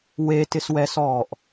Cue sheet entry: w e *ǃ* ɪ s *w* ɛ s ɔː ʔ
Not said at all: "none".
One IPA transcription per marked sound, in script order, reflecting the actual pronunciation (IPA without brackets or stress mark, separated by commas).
t, w